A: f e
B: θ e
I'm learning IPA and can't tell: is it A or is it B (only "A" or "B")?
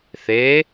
B